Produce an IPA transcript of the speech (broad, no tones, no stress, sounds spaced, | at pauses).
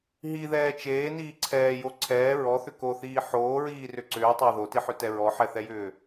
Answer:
ɦ i ð ɛː t͡ʃ eː n iː ǀʰ ɛː j o ǀʰ ɛː ɹ ɔ θ ʏ k o θ iː ħ oː ɹ iː r ʏ ǀ ʏː tˤ ɑ ð o t i ħ ʏ t ɛ ɹ ɔ ħ ɛ θ ɛ j ʏː